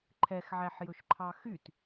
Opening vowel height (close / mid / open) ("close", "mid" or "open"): mid